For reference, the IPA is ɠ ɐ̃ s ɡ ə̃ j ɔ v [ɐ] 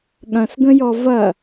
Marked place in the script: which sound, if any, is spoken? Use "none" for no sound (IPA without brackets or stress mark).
ɐ